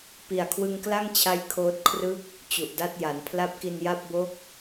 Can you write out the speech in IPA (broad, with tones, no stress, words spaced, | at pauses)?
pi˨˩a̯kʰwɯ˧ŋkla˥˩ŋt͡ɕʰa˧j kʰoː˦˥t̚kʰrɯ˥˩k̚ | t͡ɕu˨˩ʔda˥˩t̚ja˩˦n pʰla˦˥p̚ki˧nja˥˩p̚bo˥˩k̚